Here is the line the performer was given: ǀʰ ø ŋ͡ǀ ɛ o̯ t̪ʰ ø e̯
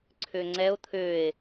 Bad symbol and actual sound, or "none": none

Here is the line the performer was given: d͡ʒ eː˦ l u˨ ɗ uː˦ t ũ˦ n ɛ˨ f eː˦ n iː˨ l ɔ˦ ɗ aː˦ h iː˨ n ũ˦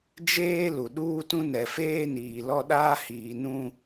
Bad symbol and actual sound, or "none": none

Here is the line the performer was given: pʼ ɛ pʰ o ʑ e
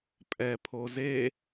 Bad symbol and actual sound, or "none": ʑ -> z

